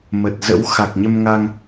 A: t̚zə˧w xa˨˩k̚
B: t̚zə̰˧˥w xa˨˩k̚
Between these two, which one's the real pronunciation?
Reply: B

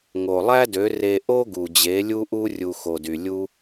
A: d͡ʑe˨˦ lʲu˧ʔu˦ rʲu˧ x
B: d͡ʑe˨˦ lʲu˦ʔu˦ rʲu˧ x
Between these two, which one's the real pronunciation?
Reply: B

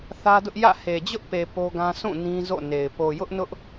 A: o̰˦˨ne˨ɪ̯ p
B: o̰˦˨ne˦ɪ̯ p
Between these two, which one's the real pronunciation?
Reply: A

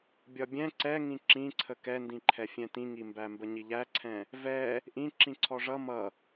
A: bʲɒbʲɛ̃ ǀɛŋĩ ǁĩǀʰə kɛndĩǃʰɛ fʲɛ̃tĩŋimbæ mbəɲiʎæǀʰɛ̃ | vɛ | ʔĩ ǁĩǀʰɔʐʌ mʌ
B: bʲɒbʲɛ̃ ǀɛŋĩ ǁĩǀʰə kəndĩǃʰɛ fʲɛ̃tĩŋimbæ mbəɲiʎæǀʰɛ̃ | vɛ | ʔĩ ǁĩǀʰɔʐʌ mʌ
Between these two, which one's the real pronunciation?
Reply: A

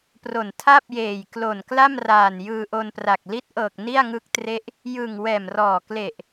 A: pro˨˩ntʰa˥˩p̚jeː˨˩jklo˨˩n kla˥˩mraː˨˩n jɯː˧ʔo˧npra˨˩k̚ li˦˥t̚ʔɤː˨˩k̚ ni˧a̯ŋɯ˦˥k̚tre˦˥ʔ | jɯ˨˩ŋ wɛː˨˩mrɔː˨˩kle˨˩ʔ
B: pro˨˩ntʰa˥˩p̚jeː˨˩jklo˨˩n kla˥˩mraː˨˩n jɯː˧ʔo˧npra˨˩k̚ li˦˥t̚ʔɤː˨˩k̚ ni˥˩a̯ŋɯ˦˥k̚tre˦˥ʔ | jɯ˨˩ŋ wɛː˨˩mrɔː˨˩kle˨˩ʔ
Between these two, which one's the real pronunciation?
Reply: B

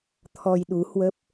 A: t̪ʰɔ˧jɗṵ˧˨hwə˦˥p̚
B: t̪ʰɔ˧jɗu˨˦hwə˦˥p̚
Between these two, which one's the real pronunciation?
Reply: B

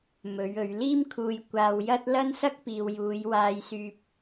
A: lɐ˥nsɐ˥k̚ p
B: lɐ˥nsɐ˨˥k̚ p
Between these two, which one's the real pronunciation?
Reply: A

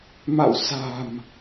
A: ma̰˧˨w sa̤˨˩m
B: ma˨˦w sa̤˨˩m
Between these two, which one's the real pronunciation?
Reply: A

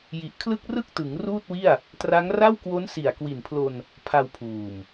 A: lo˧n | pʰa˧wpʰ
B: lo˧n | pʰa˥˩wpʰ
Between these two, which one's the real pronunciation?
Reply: A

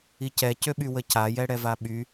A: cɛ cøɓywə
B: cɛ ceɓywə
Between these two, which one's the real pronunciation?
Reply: A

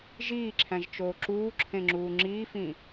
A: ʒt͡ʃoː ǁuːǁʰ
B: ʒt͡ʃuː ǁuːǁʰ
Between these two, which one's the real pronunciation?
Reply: A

